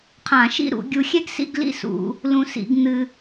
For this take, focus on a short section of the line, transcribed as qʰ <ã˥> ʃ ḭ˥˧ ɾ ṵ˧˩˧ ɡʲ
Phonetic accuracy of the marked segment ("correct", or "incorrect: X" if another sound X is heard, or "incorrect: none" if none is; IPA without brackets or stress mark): incorrect: ã˧˩˧